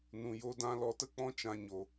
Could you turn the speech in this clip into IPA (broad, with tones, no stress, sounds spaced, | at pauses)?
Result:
n ũ˧ j o˦ d ã˦ l ɔ˧ t ə˦ k͡p ɔ̃˦ t͡ʃ ã˦ ɲ o˧